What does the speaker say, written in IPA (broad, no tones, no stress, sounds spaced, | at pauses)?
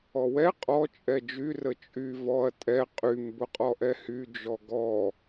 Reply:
ɔ w ɛ qʼ ɔ t͡ʃʼ ɛ d͡ʒ y r ə t͡ʃʼ y v ɔ ɐ̯ tʼ ɛ qʼ y m b ʊ qʼ ɔ ʔ ɛ h y d͡ʒ ɔ ɡ ɔ